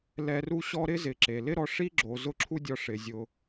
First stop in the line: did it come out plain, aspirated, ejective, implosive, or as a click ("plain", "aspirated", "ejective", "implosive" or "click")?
click